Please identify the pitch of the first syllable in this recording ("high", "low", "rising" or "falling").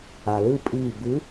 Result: low